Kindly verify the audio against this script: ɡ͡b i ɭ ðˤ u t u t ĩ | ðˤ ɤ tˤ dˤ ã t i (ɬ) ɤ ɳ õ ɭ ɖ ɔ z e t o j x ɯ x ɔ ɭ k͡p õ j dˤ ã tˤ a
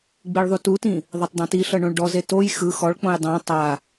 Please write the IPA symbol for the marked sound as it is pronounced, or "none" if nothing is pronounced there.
ɬ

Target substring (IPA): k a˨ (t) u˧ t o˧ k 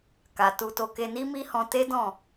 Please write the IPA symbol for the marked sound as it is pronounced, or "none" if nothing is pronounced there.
t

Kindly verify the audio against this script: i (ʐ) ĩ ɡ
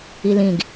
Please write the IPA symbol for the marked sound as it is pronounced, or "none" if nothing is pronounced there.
l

